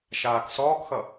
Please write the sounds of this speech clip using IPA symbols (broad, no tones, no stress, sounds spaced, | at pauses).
ʃ aː k s ɔː k x ʌ